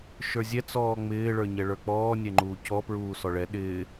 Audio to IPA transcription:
ʃ ə˞ zʲ ɛ t͡s ɔː ŋ͡m ɪː ɭ ə˞ ɲ ɛ ɭ ə˞ k͡p ɔː nʲ ɛ ŋ͡ǃ uː c ɔ p ɹ uː s ɔ ɭ ɛ ɗ ɪː

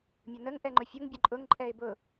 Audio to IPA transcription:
mʲ ʊ n ə ŋ ʔ ɛ ŋ͡ǃ ʊ fʲ ʊ ŋ bʲ ə ǃʼ ʊ ŋ ǃʼ ɛ ɪ̯ b ʊ

